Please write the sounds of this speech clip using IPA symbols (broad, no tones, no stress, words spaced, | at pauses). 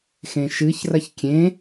xẽʃɨçrɐç kʲẽ